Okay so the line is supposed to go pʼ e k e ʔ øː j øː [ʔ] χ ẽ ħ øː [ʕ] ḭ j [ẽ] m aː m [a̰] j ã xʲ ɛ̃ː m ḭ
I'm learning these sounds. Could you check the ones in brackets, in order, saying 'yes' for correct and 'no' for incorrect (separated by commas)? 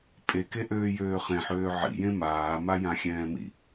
no, yes, yes, no